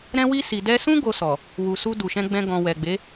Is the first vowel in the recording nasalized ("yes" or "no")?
yes